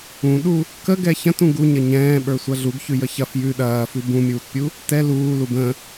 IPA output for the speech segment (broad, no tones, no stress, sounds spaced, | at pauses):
ũ ɗ u | k ə ɡ ɛ ç ɐ̃ t ũ ɡ u ɲ ɐ ɲ ɛ̃ː ɓ ə˞ sʷ ɐ ɮ u ɡ ç ʉ j ə ç ɐ f j ʉ ɗ ɐː f ʉ b ũ mʲ uː t pʲ u | t ɛ l uː l u b ə̃